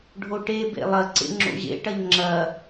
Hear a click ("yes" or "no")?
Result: yes